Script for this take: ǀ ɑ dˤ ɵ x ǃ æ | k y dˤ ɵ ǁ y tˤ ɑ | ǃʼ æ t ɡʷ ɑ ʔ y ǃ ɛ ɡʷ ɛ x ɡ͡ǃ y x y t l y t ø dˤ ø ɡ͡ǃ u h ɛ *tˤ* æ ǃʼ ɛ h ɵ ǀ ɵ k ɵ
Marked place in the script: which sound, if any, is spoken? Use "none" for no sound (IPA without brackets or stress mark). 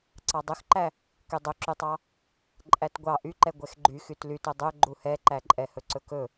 ǃ